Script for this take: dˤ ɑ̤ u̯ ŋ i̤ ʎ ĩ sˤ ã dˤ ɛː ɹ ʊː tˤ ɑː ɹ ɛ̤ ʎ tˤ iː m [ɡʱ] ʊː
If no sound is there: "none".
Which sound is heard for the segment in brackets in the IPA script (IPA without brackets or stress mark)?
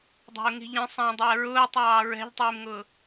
ŋ